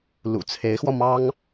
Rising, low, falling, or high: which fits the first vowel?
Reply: low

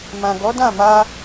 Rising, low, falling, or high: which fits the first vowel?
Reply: low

